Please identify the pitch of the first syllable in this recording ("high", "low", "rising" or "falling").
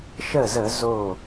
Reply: falling